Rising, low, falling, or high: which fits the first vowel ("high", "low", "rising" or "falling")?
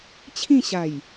falling